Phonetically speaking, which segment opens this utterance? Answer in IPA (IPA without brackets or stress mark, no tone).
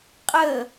qʼ